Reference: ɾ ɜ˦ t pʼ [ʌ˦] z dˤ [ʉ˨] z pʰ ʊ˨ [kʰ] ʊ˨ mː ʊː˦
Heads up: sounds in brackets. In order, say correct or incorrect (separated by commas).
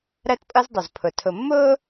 correct, incorrect, incorrect